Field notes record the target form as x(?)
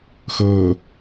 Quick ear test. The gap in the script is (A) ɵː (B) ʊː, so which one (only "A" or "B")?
A